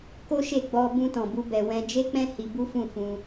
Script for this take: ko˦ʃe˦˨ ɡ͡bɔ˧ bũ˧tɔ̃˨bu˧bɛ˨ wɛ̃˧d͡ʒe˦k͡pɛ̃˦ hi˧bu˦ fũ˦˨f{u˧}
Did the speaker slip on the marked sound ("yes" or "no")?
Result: yes